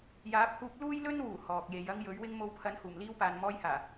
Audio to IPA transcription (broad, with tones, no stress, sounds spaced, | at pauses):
j aː˨˥ p̚ h uː˧ p̚ l uː˥ j l ɵ˥ n w uː˨˩ h ɔː˨ k̚ j e˨˧ j ɐ˥ ŋ j ɵ˨˥ ɥ w ɪ˥ ŋ m o˧ w pʰ ɐ˨˥ n h uː˨˩ m l iː˥ w p aː˨ n m ɔː˧ j h aː˨˩